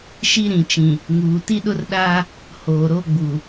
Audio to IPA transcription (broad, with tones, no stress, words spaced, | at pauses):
ʃi˦ɾĩ˨t͡ʃĩ˨ | ŋuː˨ti˦ɗʊ˦rɗaː˦ | hoː˨ɾo˦ ɡ͡bu˨